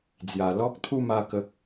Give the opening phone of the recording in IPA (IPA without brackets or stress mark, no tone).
d͡z